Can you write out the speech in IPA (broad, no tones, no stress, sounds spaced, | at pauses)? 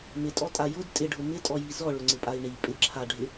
m ɪ tʼ ɔ tʼ a j ʊ d tʼ ɪ ɖʱ ʊ m ɪ tʼ ɔ j i z ɔ ɭ ʊ ŋ͡ǀ ɪ pʼ a i̯ ɳ i pʼ ɪ ǁʰ a ɖʱ ɪ